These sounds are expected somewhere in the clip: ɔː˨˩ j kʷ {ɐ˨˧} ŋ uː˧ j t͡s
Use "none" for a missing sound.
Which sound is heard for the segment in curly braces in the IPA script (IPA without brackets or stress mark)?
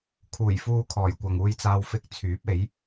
ɐ˨